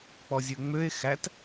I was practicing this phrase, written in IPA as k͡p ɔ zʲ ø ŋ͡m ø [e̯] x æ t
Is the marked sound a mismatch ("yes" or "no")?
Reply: no